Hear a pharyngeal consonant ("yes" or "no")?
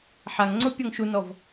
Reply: yes